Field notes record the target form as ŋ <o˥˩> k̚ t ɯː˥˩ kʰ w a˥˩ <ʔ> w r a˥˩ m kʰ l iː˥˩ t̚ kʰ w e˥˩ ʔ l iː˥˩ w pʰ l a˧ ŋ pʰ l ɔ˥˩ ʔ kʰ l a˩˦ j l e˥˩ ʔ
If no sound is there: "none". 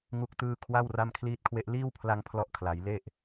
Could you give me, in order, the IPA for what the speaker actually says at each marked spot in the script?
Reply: u˥˩, none

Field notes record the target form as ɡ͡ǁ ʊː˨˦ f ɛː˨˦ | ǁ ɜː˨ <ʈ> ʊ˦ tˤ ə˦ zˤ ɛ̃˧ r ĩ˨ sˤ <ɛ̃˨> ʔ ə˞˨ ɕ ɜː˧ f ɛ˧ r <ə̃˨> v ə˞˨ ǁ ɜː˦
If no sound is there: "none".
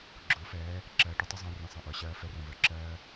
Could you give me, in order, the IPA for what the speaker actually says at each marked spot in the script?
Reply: ʈ, ɛ̃˨, ə̃˨

